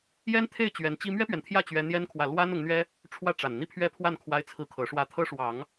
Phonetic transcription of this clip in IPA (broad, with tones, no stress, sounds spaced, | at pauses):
j ɛ˥ n t̪ʰ e˥˩ ɪ̯ t͡ɕ ɥ ɛ˧˥ n t͡ɕ i˥ m ɥ ɛ˥ p ɥ ɛ˨ n t̪ʰ j ä˥˩ t͡ɕ ɥ ɛ˥ n̪ j ɛ˥ n kʰ w ä˥˩ l w a˥ n ʊ˧˥ ŋ n̪ ɥ ɛ˥ | ʈ͡ʂʰ w ä˥ ʈ͡ʂ a˨˩ n n̪ i˥˧ pʰ ɥ ɛ˥˧ pʰ w a˥˩ n kʰ w a˥ ɪ̯ t͡sʰ ɹ̩˥˩ kʰ ɤ˧˥ ʂ w ä˥˩ t̪ʰ ɤ˥ ʂ w ɑ˨˩˦ ŋ